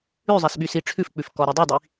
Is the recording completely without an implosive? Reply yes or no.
no